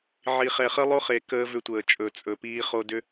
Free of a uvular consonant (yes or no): no